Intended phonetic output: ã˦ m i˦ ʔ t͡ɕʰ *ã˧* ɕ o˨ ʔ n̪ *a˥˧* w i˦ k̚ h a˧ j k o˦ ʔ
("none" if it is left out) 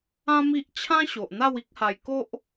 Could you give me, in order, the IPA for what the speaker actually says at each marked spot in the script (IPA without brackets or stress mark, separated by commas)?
ã˦, a˥˧